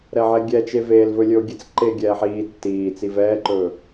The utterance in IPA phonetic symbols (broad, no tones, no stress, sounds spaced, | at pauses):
ɾ ɛ ʕ ɛ ɡʲ ɛ t͡ʃ e v eː l v ɵ lʲ ɵ o̯ ɡʲ e t͡s ǃ eː ɡʲ ɛː ħ iː tː iː t͡s i v ɛː ǃ ɵ